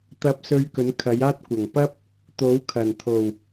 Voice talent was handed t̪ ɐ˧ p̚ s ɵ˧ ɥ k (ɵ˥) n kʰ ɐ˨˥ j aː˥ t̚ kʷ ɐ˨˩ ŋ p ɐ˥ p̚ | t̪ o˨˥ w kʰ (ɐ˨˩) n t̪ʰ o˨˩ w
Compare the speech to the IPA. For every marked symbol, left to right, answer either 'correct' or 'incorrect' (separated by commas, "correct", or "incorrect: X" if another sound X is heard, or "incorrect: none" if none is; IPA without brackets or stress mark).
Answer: incorrect: ɵ˨˥, correct